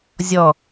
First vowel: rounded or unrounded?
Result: rounded